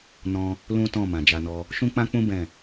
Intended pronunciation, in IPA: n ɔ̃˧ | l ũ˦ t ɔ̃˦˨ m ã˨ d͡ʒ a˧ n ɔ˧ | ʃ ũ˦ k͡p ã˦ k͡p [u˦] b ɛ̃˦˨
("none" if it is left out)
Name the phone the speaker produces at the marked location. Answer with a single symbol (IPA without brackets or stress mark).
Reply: ũ˦